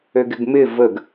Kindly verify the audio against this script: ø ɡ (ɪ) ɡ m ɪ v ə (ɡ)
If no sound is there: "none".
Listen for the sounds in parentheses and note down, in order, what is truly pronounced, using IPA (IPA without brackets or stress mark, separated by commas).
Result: ɪ, ɡ